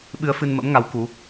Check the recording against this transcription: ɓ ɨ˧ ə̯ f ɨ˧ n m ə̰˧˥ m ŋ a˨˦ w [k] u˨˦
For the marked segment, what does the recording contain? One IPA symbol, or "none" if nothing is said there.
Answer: k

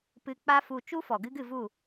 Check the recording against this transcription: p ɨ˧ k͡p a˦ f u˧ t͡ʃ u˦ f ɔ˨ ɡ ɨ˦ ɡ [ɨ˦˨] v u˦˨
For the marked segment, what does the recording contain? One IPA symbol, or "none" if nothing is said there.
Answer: ɨ˦˨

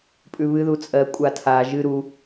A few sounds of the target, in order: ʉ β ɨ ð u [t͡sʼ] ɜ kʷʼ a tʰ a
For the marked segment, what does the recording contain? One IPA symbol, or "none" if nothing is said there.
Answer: t͡sʼ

